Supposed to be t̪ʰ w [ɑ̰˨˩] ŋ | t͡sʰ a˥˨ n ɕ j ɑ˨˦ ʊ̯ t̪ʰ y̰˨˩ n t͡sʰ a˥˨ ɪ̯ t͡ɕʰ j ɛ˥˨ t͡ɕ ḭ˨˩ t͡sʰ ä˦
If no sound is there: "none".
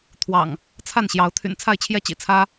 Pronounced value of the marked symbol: ɑ̰˨˩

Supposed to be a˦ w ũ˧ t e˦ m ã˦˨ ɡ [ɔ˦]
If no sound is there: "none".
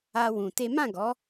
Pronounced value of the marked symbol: ɔ˨˦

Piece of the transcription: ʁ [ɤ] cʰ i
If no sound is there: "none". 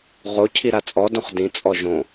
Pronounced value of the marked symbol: o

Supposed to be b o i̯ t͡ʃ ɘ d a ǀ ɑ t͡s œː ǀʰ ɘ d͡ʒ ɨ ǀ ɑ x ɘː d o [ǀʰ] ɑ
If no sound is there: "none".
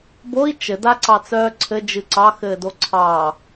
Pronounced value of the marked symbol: ǀʰ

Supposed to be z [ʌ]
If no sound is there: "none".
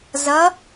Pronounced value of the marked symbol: ʌ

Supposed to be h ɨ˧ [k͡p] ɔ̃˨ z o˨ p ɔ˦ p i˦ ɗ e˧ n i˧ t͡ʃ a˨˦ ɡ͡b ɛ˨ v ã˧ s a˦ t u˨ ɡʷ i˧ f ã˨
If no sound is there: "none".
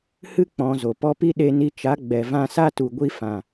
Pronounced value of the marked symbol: k͡p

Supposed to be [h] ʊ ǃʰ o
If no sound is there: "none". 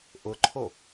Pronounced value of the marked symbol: ʔ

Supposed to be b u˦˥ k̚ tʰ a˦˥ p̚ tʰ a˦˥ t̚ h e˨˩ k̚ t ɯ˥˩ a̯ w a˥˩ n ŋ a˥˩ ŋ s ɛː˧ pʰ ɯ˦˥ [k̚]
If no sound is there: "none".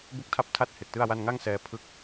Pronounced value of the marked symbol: k̚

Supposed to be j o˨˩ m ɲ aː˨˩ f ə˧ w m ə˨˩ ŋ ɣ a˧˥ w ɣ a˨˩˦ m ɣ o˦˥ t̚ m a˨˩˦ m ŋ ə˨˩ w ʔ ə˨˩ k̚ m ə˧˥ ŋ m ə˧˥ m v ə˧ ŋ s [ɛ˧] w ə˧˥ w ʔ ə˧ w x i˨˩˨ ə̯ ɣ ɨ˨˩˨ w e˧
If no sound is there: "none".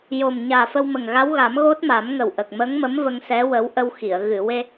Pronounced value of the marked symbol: ɛ˧˥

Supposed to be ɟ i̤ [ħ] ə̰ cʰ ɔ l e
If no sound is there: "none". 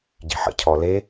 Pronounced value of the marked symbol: ħ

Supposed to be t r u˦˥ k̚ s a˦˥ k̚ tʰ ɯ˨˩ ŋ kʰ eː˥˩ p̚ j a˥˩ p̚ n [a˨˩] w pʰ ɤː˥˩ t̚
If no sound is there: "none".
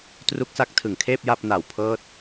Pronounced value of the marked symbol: a˨˩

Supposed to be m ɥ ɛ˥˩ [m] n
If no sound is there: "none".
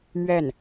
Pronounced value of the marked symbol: none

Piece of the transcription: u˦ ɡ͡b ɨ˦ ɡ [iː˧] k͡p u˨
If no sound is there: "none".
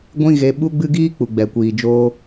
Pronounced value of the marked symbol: iː˦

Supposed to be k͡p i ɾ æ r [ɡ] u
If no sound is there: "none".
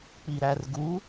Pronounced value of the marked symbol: ɡ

